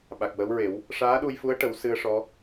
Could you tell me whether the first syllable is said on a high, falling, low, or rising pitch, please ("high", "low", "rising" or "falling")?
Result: low